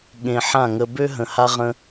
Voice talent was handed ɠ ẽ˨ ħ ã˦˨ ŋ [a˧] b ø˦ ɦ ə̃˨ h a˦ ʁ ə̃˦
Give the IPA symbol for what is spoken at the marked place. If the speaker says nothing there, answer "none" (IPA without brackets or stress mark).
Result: ə˧